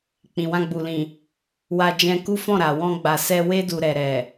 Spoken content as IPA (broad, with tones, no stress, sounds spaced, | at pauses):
k͡p ĩ˨ w ã˧ ɡ͡b u˨ l ĩ˨ | w a˧ d͡ʒ ɛ̃˧ k u˦ f ɔ̃˦˨ ɾ a˨ w ɔ̃˧ ɡ͡b a˨ s ɛ˧ w e˦ d u˧ ɾ ɛ˨ ɾ ɛ˨